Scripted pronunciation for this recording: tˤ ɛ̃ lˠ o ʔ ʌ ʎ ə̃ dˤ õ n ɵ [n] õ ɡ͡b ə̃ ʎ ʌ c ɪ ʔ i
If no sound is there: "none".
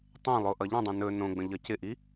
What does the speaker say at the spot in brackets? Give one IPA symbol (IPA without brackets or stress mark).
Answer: n